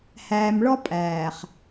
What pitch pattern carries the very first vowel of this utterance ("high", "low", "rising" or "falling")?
low